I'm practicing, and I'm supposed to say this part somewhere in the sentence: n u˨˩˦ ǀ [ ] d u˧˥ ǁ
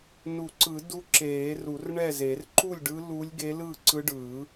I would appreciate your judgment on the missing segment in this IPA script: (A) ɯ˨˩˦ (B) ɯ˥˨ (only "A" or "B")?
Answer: A